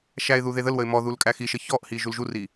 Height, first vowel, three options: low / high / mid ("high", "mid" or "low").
low